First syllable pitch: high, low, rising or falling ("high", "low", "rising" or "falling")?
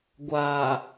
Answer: low